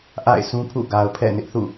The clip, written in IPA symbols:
ʔa̰˦˨ɪ̯sũ˦pʰṵ˦˨ ɡa˨ʊ̯pʰɛ̰˦˨ nɪ˦ʔθṵ˦˨

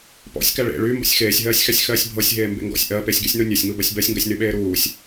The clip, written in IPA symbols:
pɔ̰sʲkæ ɭḛ ɭy mbɔ̰sʲxeːsʲɦɜːsʲxæsʲ xɜːsʲbʱɤsʲɦeː mbḛŋɡɔ̰sʲ ʔɜ pesʲɡysʲnu nʲɜsʲŋubɜsʲ bɜsʲŋɡɜsʲ nyɓeːɾuːsʲ

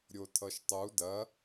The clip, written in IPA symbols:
ɾʲotʰʌʃtˤu dɐ

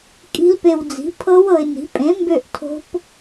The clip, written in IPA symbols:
kʼi̤˦˥lpe˧wd͡zi̤˨˥ pʰɤ˦˥w ɤ˧ɪ̯ni̤˨˥ pʼẽ˨˥ mbø˥˧ʔ tʰo̤˦˥p

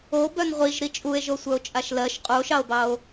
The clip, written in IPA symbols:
obœn ʁʷiʒɾi t͡ʃʼue̯ʒo sʷœo̯t͡ʃʼaʃlɜʃ qʼuo̯ʃɑo̯bɑo̯

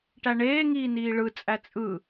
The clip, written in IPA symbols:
ʈæɳeːŋiː niːɭɯt͡sʼæ t͡sʼɯ

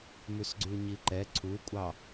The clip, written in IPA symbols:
mʉsɡ͡ǀʉɲiǃɛ ǀʰukʷʼɑ

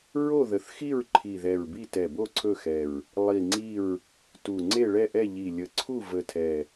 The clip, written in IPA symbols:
ɹo˦˨ðə˨˩θxi˦˨ɹ ǃʰi˨˩ðɛ˨˩ɹbi˦˨ tɛ˨˩bo˦˨ ǀʰɵ˦˨xɛ˨˩ɹ | lˠi˨˩ ŋ͡ǀi˦˨ɹ | tu˨˩ ŋ͡ǀe˦˨ɭɛ˦˨ʔɛ˦˨ʎi˨˩ lʲə˨˩ǀʰu˦˨ və˨˩tʰɛ˨˩

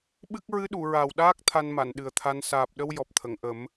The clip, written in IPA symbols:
ɓɨ˦˥k̚ ɹɨ˧˥ɗu˨˩˨ɹa˨˩w ɗaː˦˥k̚ t̪ʰa˧nma˨˩˨n ɗɨ˨˩ə̯t̪ʰa˧n saː˨˩p̚ɗə˧w jɔ˨˩p̚t̪ʰə˨˩˨ŋʔə˨˩˦m

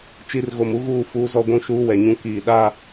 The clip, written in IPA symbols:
t͡ʃi˦r ɣo˨mu˦ɣuː˦˨ fuː˦zɔ˦ɡʷũ˦ ʃuː˦wɛ˨ɲũ˦ kiː˨ ɗaː˦

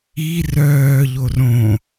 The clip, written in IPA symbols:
i rœːʎor õ

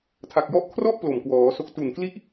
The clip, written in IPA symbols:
tʰa˨˩k̚jɔ˦˥ʔ kʰrɔ˥˩ʔ plo˨˩mkwɔː˩˦so˦˥k̚ tu˨˩nkli˥˩ʔ

